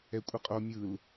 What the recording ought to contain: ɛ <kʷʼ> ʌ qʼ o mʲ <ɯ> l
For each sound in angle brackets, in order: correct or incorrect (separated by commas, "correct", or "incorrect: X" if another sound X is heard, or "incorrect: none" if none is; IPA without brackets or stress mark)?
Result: correct, correct